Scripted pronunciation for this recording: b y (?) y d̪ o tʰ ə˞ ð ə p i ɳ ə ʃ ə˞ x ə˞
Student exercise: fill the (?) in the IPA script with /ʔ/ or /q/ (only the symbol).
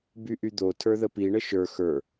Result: ʔ